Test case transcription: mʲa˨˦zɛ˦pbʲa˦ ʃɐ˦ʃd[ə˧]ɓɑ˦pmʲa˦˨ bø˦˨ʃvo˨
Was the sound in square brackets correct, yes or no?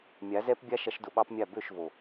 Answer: no